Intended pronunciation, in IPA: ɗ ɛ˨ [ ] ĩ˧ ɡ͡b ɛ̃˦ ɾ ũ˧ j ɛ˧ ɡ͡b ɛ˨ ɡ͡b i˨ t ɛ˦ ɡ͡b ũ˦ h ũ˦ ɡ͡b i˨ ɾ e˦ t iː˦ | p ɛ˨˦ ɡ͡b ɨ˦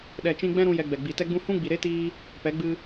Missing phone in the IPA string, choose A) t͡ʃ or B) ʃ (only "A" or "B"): A